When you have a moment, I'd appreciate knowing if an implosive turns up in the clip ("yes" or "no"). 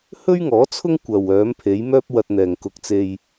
no